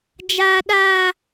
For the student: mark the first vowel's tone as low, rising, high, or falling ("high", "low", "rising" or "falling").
high